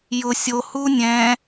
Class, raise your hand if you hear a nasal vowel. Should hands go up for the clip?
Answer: yes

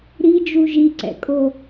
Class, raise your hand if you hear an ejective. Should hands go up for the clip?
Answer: yes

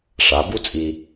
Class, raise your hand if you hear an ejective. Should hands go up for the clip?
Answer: yes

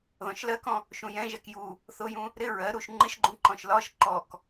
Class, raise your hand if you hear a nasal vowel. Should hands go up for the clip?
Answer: yes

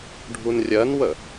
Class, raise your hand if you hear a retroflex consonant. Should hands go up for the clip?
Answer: yes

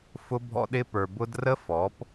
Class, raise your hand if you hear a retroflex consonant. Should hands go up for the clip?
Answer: no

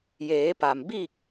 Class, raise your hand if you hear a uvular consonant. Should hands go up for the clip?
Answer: no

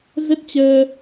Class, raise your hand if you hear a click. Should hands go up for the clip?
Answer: no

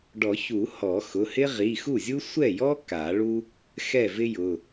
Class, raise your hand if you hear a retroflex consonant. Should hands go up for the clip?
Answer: yes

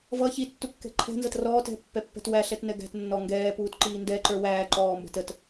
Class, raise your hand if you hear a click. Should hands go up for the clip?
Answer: yes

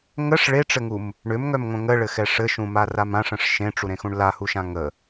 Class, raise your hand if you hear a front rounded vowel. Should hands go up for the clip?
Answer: yes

